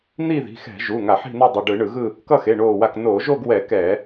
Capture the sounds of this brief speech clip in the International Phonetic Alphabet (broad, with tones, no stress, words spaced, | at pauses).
n̪i˥˧ði̤˩˧˩xɛ̤˧˩˧ ʒu˩˧˩ ŋa˧˩˧ħi̤˥˧no˥˧ dˤu˩˧˩ɖɯ˧˩˧ɳɯ˧˩˧ɣɯ˥˧ | kʌ˥˧xe˩˧˩ɳoː˧˩wa˧˩k noː˧˩˧ʒo˥˧ɡwɛ˧˩˧ kɛ˧˩˧